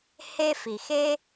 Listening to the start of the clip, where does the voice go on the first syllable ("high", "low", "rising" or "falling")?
high